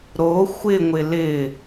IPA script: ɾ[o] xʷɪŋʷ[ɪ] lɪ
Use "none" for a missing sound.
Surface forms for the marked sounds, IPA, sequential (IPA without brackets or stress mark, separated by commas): o, ɪ